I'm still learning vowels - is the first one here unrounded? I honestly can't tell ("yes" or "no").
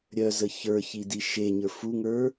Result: no